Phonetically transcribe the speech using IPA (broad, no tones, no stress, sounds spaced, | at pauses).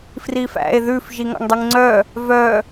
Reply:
f r i f æ̰ e̯ ð ʉ f ʒ i ŋ ɑ̰ ŋ dˤ y ŋ ŋ͡ǀ œ | v œ